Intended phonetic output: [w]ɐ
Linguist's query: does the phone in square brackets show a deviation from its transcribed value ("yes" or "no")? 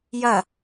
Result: yes